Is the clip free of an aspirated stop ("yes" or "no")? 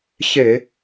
yes